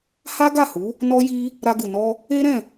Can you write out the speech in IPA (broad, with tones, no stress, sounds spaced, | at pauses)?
h a˦ ɡ a˦˨ h u˨˦ | n ɔ˦ j i˦ | ɾ a˧ ɡ u˨ n ɔ˧ | e˦ ɾ ɛ̃˦˨